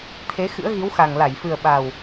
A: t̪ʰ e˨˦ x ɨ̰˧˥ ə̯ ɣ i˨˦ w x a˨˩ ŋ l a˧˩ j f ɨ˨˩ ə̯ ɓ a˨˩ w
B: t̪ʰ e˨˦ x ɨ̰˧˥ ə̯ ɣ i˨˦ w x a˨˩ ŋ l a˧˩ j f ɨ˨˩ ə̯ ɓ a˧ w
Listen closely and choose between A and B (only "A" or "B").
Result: A